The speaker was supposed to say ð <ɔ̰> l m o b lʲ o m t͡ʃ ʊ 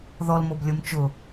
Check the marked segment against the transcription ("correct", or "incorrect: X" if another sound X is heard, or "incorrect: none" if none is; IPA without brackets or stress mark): incorrect: ɔ